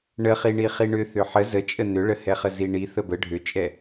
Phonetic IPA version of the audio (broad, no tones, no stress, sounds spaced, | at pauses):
ɳ ə χ i ɳ i χ i ɳ ʏ θ ʏ ħ ə z ə t͡ʃʼ ə n ʏ ɭ ə h ɛ χ ə z i ɳ i θ ə b ə ɖʱ ʏ t͡ʃʼ ɛ